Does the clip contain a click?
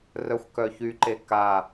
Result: yes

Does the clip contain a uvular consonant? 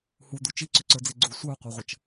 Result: yes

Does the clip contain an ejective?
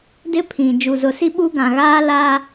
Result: no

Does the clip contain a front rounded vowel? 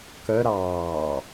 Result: yes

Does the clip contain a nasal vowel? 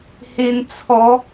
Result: no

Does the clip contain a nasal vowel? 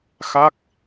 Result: no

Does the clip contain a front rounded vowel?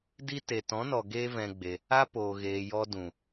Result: no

